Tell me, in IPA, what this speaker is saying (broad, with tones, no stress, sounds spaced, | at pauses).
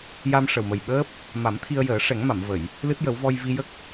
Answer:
j a˧ m ʂ ə˨˩ w m ə˨˩ j ɓ əː˦˥ p̚ | m a˨˩˦ m t̪ʰ i˧ ə̯ j əː˨˩˦ ʂ ɛ˨˩˦ ŋ m a˨˩˨ m v ə˨˩˨ j | l ɨ˦˥ t̚ j ə˨˩˦ w v ɔ˧ j v i˧ j ə˦˥ k̚